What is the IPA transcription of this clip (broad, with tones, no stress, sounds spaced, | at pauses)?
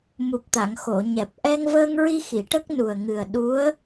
m u˨˩ p̚ t̪ a˨˩˨ ŋ x o˨˩˨ ɲ ɛ˨˩ p̚ ʔ ɛ˧ ŋ v əː˧ ŋ ɹ i˧ x i˨˩˨ ʈ ə˦˥ k̚ n u˨˩ ə̯ ŋ ɨ˨˩ ə̯ ɗ u˧˥ ə̯